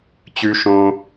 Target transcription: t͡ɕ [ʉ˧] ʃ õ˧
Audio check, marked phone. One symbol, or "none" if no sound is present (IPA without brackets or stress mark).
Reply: ʉ˧